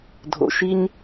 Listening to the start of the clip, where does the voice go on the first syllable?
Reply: low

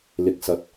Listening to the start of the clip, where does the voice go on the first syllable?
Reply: low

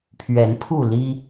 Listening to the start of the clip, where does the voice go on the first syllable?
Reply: rising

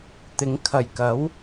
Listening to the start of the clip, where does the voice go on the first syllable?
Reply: rising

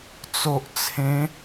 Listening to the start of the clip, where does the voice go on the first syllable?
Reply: low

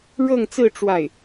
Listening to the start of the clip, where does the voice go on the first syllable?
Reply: falling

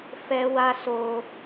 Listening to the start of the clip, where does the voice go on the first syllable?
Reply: high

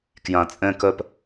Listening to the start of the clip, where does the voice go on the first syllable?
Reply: low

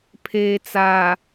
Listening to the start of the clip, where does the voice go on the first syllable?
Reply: low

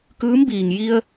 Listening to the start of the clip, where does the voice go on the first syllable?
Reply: rising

